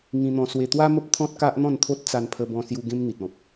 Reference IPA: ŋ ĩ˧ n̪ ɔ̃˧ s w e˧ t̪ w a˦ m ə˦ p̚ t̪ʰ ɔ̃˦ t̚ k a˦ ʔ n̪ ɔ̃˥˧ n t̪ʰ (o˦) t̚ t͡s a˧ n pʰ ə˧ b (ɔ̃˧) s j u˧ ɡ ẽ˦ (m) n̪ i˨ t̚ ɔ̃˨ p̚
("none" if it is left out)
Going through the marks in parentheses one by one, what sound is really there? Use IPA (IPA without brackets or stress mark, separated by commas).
o˦, ɔ̃˧, m